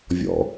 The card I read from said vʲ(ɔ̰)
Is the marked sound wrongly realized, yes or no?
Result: no